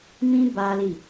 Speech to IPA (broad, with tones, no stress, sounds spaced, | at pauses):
m ĩ˦ b a˦ l i˦˨